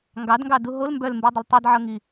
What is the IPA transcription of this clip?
ŋɡɑdŋɡɑdu ɦol mbœlmbudˤɪl tˤidʕɤŋi

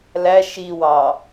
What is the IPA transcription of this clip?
læ ʃiwɑ

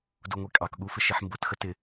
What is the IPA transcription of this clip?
duŋʷikʼɑkɠu fɪʃiħmbʊtxə tɪ

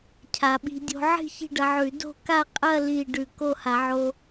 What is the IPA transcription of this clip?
cʰa˨˩˦ɓi̤˧ dʲo̤˧ ʕi̤˥˧ çi̤˥˧ɖɐ˧ʕʉ˨˩˦ do̤˥˧ka˥˧ qʼɐ˥˧ li˥˧ ɖʉ˧˩ko˥˧ha˨˩˦ʕo˧

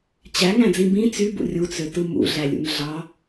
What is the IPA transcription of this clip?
t͡ɕæŋæ̃d͡zĩ bĩ t͡sybṵ rʲut͡søtɯ mṵɮælʲṵn ɮɑ

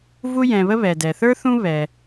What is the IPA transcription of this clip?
vu˦jɛ̃˧βə˦ βɛ˨dɛ˨θə˞˦θũ˦ βɛ˦

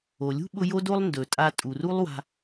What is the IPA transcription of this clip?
o˩lʲṳ˥ɓʊ˧ jo˥do˥lˠ ndɵ˩tʼa˧ tʼu˩ru˥lˠ wa̤˧

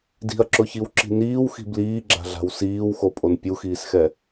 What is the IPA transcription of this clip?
di̤ɐ̯ǁʊçiwǁi̤ niːwxi̤ bliːɡ͡ǁa̤ɮa̤w siːwxopʼon pʲuxiːsxɛ

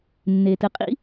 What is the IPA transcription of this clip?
nːe˩tɨ˩qʼḭ˧

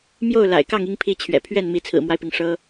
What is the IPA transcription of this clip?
mjo˥˩ʊ̯ la̰˨˩ɪ̯kɑ˥˩ŋ i˥ŋpʰi˥˩t͡ɕʰɥɛ̰˨˩ pʰɥɛ˥˩n mi˧˥ t͡sʰɹ̩˨˩mwa˦ɪ̯pi˩ŋ ʂɤ˥

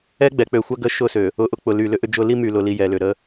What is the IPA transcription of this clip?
ɛ˦ɡ͡bɛ˨ k͡pø˨xʷɐ˦ɡə˦ ʃʊ˦˨sø˨ | ʊ˨ʔʊ˦k͡pʊ˨ly˨ lʏ˦ʔʏ˦d͡ʒʊ˦ li˦my˨ lʊ˨li˨ jɛ˨lʏ˨ ɾə˦

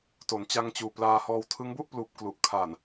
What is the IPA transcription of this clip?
to˩˦nt͡ɕa˧ŋt͡ɕuː˨˩ plaː˧hɔː˧w tʰɯ˦˥ŋbu˥˩ʔpluː˨˩p̚ klu˨˩ʔ kʰa˨˩n

